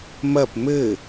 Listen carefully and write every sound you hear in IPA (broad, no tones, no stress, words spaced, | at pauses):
mɐp mɘ